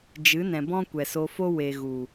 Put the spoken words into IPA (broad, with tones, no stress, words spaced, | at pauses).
d͡ʒɨ˨˦nɛ̃˨bɔ̃˦ kʷɛ˨so˧fo˦ we˨ɣu˨